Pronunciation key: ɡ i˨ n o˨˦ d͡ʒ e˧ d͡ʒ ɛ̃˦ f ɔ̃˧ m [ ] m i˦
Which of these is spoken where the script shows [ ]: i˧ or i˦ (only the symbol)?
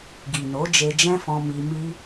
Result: i˧